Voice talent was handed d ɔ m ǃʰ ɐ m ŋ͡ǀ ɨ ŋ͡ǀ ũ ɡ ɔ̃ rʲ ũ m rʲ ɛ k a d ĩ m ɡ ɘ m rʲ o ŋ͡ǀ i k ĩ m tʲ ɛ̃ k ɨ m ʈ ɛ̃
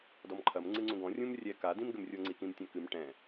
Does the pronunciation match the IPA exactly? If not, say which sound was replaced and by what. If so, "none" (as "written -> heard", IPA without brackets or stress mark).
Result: none